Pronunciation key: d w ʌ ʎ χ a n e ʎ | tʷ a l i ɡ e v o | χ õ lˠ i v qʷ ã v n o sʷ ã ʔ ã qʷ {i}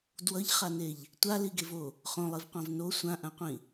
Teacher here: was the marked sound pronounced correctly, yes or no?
no